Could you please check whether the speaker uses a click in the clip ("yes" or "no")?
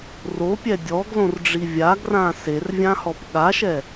no